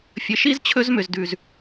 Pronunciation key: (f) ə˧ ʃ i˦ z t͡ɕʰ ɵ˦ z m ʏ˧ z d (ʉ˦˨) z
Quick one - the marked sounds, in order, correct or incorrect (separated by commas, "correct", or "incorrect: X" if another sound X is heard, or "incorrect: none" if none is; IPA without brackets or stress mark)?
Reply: incorrect: fʲ, incorrect: ʉ˧